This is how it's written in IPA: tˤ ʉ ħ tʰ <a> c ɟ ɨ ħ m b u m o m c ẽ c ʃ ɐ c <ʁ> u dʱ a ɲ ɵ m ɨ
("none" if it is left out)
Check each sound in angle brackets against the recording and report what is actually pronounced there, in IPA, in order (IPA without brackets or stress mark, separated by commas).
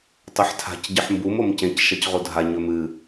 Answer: a̤, ʁ